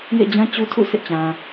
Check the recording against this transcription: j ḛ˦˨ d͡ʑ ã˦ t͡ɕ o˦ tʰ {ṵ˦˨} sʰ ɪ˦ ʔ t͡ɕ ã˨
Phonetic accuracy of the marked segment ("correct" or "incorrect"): correct